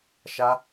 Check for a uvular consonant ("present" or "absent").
absent